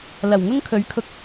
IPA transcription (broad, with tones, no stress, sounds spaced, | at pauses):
l ɐ˨˩ w ŋ ʊ˥ ŋ kʰ ɵ˨˥ ɥ kʰ ʊ˧ k̚